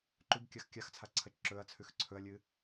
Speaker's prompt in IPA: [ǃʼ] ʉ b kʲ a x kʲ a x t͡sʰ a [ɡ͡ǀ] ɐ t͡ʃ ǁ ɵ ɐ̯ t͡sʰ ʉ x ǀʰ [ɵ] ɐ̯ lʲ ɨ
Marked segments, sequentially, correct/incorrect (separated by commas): incorrect, incorrect, correct